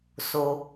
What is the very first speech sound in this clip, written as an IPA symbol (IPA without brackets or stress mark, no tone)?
s